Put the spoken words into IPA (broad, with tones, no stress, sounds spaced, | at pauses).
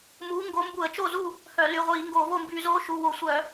m uː˨˥ ŋ ɡ o˨˥ m b u˧˩˧ ə̯ t͡ʃ o˥˨ z u˥˨ | h œ˧˩˧ l y˩˧˩ ʁʷ iː˧˩˧ ŋ ɡ o˧˩˧ v o˥˨ m b yː˧˩˧ z oː˨˥ ʃ u˩˧˩ w o˧˩˧ sʷ œ˧˩˧